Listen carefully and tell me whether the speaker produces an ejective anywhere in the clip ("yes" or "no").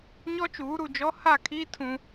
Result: no